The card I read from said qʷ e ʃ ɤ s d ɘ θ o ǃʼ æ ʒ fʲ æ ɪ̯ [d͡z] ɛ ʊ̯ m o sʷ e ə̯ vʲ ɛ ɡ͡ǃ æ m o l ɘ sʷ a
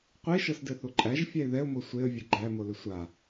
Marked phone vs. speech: incorrect: ð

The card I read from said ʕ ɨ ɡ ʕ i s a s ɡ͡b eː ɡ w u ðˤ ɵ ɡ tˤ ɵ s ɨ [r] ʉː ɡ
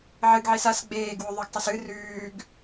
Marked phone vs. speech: correct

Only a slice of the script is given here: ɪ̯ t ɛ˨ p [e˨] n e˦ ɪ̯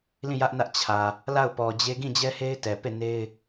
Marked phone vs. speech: incorrect: e˦˨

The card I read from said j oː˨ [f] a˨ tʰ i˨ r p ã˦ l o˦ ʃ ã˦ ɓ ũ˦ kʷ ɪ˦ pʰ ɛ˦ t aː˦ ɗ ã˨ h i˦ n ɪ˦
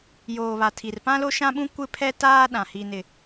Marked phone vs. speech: incorrect: β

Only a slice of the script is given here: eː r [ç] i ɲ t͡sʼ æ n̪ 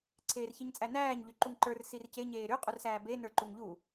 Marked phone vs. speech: correct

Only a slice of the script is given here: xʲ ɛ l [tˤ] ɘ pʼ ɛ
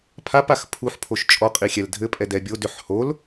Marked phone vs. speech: incorrect: dʱ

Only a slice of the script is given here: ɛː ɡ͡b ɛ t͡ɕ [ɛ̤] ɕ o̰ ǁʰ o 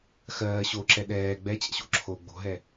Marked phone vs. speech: incorrect: ɛ̰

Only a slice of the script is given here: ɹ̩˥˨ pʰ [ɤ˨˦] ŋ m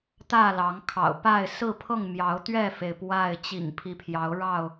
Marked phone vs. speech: incorrect: ɤ˥˨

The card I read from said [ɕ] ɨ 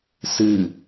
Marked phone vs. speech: incorrect: s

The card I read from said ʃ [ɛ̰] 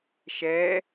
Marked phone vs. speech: incorrect: ɛ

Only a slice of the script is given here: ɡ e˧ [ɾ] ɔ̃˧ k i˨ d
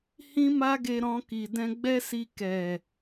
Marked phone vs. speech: correct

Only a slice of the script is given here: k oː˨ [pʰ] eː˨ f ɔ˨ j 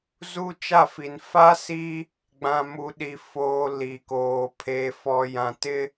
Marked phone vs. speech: correct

